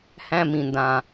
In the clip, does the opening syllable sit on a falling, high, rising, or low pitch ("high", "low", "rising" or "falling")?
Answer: high